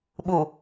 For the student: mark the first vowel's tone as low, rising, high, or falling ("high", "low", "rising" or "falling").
low